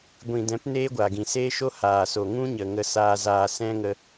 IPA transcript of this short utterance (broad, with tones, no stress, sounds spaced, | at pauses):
ɡʷ ĩ˨ d ɛ̃˨˦ p n eː˦ ɡʷ a˨ ɡ ĩ˨ s eː˦ ʃ o˦ h aː˨ s o˨ ŋ ũ˦ ɲ ə˨ ŋ ə˧ s aː˧ z aː˧ s ɛ̃˦ ŋ ə˧